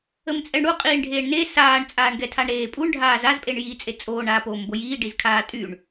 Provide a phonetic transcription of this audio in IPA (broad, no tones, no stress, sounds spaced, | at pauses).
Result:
ə m t͡sʼ ɛ ɳ ɽ u qʼ iː ɳ ɖʱ eː ɳ n e s aː ɳ t͡sʼ aː ɳ ɡ ɛ tʰ a ɳ ɾ eː pʼ u ɳ ɖʱ aː z a z pʼ e ɳ j iː t͡sʼ e t͡sʼ oː ɳ aː p oː m b o j iː ɖ i z kʰ aː tʼ y ɳ